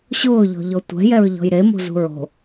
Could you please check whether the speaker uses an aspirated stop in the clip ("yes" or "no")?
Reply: no